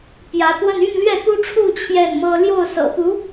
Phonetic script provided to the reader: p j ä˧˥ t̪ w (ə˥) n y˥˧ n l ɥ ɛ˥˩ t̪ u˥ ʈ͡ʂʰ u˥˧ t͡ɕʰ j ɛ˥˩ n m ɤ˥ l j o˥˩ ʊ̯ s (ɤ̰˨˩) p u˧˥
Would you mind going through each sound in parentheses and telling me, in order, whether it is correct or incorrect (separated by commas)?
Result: incorrect, correct